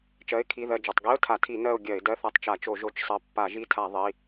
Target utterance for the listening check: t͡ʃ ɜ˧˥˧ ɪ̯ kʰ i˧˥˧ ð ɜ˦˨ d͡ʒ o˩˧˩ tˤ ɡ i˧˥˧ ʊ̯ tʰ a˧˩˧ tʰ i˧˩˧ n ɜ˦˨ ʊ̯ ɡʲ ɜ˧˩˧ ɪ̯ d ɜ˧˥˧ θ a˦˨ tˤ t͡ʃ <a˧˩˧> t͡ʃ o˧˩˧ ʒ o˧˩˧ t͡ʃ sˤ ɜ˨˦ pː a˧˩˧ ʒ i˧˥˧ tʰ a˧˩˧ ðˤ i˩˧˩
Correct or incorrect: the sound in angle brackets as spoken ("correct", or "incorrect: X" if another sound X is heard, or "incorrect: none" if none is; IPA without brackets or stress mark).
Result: correct